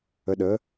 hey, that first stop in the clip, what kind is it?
implosive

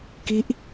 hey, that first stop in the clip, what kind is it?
plain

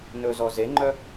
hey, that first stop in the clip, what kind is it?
click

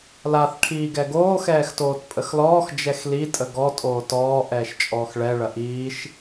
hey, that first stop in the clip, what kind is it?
aspirated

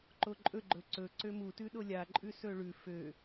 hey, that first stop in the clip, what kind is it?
click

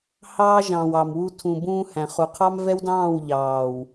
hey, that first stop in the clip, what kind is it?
aspirated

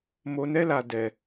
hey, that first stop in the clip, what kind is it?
plain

